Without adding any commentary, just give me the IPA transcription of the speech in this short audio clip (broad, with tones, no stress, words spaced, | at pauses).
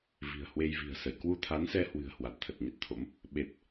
vi̤˨˩ə̯hwe˧jvi̤˨˩ə̯sə˧˩j kwu˧t̪ʰa˨˦nsɛ˧ hwɨ̤˨˩ə̯hwa˨˩t̚t̪ʰə˨˩t̚ ɲə˦˥t̚t̪ʰo̰˧˥m | ɓe˨˩t̚